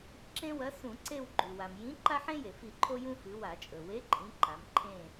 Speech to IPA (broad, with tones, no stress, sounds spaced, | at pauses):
ǁ ẽ˦ w ɐ˨˥ s ũ˧˩˧ ǀ e˦˨ w ɡ͡ǃ ʉ˩ w a˩ m j ĩ˨˥ ǃ a˦ ħ ẽ˦ j e˩ f i˧˩˧ ǃʰ o˦ j ũ˦ f ɨ˩˧ w a˧˩˧ t͡ʃʼ ɵ˩ w e˨˥ ǃʼ ĩ˩˧ ǃ a˩˧ m ǃʰ ẽ˦˨